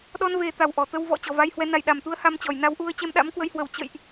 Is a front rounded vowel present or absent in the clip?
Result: absent